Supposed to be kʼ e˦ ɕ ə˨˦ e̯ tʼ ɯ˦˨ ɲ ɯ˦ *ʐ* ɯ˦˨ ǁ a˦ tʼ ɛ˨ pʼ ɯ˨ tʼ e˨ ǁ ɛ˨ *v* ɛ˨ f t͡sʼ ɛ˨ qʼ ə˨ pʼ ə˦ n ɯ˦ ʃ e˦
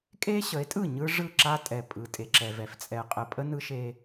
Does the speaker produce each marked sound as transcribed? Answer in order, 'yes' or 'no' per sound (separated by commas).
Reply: yes, yes